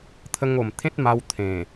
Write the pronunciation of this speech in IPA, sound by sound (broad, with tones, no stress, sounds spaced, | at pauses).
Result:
t̪ʰ ə˧ ŋ o˨˩ m t̪ʰ ẽ˦ t̚ m a˧ w t̪ʰ ẽ˨˩